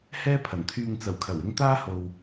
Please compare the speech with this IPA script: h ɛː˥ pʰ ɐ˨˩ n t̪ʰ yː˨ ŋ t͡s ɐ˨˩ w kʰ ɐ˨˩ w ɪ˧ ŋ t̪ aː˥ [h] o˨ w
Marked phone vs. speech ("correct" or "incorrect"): correct